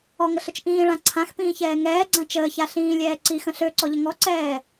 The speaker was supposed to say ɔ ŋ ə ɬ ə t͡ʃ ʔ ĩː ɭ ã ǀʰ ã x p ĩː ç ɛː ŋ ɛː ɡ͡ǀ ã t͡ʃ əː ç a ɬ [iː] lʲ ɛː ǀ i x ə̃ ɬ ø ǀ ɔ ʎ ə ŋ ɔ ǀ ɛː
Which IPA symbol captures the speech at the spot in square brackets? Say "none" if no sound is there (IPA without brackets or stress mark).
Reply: ĩː